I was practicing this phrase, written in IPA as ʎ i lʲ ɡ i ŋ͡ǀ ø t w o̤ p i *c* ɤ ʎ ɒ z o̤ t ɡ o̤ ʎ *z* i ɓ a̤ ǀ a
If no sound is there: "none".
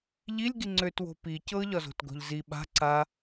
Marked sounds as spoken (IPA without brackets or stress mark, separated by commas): c, z